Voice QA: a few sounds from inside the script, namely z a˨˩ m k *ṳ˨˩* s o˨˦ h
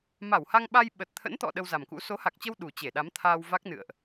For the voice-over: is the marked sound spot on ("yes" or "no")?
no